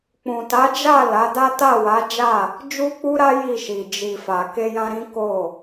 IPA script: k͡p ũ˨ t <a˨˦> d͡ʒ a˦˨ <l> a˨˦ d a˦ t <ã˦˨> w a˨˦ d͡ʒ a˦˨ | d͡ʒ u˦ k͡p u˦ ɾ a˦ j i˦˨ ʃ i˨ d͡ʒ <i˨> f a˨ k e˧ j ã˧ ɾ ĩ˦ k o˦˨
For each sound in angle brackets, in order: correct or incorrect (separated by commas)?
correct, correct, incorrect, correct